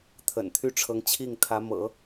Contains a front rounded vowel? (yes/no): yes